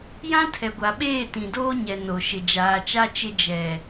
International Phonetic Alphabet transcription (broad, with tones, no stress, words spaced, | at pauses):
jã˦tʰɛ˨ɡʷa˨ɓeː˦˨ tĩ˨doː˦ɲɛ˨ no˨ ʃɪ˨d͡ʒaː˨t͡ʃa˦t͡ʃɪ˦ d͡ʒɛ˨